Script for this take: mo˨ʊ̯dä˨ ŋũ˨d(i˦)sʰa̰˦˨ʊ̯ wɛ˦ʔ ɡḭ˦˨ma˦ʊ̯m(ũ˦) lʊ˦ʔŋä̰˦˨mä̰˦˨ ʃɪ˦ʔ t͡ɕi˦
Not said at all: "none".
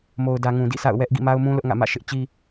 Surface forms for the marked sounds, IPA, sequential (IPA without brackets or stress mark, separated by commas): ḭ˦˨, ũ˦